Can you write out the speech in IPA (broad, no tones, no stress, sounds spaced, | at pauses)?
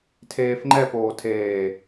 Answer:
tʰ eː f ŋ͡ǃ ɛ p oː tʰ eː